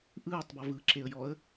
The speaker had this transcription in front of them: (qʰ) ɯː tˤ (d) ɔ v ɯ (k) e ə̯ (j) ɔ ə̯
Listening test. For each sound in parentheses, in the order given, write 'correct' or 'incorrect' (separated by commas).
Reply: incorrect, incorrect, incorrect, correct